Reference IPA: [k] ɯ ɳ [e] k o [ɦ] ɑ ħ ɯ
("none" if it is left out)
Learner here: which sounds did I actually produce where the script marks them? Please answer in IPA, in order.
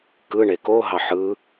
k, e, ɦ

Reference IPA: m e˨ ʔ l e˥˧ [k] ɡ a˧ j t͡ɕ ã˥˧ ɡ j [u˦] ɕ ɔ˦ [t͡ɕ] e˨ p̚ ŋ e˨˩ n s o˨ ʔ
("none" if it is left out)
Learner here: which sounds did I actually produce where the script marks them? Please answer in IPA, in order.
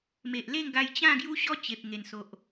ŋ, u˦, t͡ɕ

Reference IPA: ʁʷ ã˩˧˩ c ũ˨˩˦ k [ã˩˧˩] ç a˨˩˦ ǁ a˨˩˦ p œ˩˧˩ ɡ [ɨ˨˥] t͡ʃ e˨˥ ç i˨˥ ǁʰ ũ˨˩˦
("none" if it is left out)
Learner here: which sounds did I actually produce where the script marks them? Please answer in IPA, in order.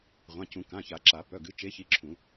ã˩˧˩, ɨ˨˥

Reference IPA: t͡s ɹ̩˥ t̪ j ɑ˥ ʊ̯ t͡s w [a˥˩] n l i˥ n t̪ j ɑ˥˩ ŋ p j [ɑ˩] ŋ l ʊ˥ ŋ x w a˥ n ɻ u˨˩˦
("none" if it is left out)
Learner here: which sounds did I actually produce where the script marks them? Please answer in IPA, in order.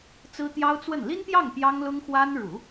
ə˥˩, ɑ˥

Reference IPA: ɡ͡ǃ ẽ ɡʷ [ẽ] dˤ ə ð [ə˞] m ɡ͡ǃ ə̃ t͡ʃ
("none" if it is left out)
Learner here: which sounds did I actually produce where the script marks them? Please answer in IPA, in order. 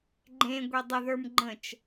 e, ə˞

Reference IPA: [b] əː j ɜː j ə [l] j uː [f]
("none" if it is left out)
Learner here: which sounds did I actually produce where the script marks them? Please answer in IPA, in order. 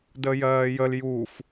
d, l, f

